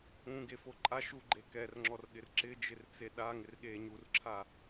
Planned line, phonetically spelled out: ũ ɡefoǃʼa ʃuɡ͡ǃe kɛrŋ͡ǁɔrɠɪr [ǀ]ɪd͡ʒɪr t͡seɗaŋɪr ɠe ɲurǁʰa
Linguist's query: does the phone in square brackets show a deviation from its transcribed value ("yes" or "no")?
yes